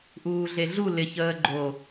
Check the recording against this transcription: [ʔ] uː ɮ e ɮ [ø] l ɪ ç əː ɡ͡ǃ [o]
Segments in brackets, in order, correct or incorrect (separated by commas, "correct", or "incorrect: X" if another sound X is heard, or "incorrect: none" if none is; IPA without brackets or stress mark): correct, incorrect: u, correct